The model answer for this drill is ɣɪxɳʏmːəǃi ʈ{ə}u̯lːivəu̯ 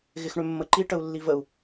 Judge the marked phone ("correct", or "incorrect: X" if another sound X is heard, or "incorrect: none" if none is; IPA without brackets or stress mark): correct